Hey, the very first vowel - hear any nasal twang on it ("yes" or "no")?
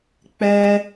no